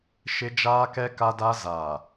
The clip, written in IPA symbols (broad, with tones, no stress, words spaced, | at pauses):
ʃɪ˦d͡ʒaː˦kɛ˦ ka˦da˦ zaː˨